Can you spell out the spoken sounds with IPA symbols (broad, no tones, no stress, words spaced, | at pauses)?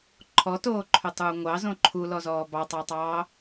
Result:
ǃʰɔtoːǃʰɵtˤuː ŋʷɑzõ ǃʰulɔzɔː bɑtˤɑtˤɑː